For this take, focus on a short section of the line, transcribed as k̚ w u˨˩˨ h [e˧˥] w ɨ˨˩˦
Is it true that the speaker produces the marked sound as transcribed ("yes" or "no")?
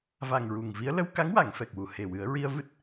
no